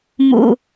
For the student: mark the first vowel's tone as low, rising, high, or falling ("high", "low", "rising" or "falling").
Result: low